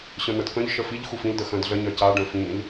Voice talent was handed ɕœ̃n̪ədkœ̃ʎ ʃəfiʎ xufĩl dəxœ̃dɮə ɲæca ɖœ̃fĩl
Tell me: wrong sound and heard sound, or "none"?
æ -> œ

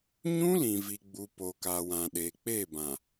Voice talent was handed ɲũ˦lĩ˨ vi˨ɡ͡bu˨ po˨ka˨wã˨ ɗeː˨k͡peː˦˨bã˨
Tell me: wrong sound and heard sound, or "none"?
none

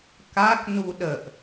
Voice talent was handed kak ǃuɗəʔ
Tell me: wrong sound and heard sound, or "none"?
ǃ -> n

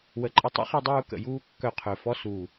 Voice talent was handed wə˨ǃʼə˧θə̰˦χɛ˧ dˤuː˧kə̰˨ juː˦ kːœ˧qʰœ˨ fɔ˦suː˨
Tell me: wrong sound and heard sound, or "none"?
θ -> tˤ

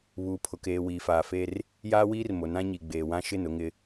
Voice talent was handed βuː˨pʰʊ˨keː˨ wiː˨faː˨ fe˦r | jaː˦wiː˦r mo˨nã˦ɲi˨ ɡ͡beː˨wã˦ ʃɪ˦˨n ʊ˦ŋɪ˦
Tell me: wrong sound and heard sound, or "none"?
none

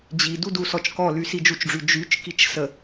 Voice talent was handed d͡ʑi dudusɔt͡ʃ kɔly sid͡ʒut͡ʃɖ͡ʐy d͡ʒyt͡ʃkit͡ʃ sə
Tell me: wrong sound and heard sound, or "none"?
none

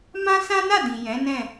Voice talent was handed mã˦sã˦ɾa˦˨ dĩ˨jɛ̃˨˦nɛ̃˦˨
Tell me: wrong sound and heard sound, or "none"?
ɾ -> n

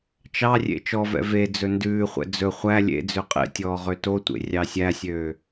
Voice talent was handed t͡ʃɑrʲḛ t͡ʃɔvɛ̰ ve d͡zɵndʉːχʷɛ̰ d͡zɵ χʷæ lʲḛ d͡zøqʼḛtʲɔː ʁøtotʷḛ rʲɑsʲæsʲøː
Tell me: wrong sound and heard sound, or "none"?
none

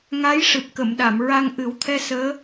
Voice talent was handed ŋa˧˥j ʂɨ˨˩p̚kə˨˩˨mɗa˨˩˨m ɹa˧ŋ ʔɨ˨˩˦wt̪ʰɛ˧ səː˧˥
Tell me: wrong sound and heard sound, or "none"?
none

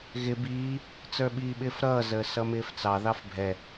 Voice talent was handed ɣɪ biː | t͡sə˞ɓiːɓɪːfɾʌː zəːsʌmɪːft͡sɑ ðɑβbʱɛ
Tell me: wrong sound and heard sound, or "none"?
β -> f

